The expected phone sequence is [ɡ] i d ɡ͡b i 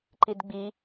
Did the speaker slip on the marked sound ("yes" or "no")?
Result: yes